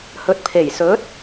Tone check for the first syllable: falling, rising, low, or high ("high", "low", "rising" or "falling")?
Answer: rising